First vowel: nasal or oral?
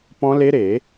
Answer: nasal